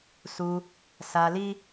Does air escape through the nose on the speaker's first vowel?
no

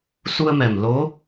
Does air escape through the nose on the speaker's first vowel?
no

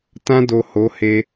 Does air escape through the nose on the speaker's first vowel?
yes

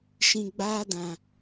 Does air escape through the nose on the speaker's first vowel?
yes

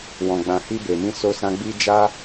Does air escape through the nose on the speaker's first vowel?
yes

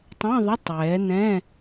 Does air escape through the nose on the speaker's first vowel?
yes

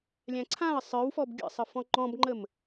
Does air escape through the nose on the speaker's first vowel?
yes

